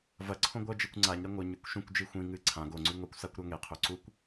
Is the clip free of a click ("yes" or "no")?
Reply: no